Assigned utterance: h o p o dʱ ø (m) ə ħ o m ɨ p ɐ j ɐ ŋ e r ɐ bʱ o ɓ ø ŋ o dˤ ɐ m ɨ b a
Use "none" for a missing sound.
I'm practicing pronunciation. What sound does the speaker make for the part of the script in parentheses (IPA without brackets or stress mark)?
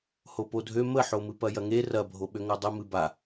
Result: m